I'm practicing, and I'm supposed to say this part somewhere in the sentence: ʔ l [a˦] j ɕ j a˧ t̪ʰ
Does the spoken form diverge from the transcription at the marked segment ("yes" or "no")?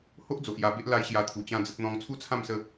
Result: no